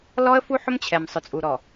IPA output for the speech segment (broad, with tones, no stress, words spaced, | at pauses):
lɔ˦ə̯fu˦ ħʊ˦mt͡ɕʰɛ˨m sˤʊ˨t͡sʼu˨ɾɔ˨